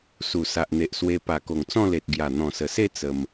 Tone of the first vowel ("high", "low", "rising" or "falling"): low